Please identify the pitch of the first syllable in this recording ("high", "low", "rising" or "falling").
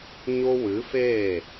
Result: high